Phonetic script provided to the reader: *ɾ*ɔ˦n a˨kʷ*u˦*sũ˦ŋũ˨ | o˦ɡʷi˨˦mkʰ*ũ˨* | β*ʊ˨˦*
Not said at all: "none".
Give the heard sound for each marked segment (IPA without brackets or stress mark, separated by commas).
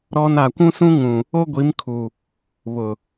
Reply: ɾ, ũ˦, u˨, ʊ˨